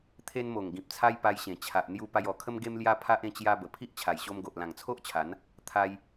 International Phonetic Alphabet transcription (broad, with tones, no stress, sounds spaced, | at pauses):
t̪ʰ e˧ n m o˨˩ ŋ ɡ ĩ˨ p̚ t͡sʰ a˧ j p a˧ j ɕ ẽ˨˩ t͡ɕʰ a˨ ʔ n̪ j u˧ p a˧ j ɔ˨˩ kʰ ə˦ m ɡ e˦ m l j a˦ pʰ a˦ ʔ ẽ˥˧ t͡ɕ j a˧ b ə˨˩ pʰ i˦ ʔ t͡ɕʰ a˨˩ j ɕ o˧ m ɡ o˨ ʔ l ã˨˩ ŋ t͡sʰ o˦ ʔ t͡ɕʰ a˨˦ n | t̪ʰ a˧ j